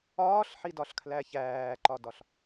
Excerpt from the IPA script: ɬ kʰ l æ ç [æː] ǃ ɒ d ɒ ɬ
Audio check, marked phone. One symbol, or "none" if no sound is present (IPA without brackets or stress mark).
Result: æː